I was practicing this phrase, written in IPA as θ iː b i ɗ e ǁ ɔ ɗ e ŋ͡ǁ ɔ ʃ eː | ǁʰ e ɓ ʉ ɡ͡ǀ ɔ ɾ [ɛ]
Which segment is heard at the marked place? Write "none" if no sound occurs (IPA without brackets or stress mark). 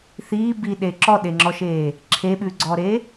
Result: e